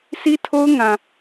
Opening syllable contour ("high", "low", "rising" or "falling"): high